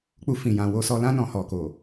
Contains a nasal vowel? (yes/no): yes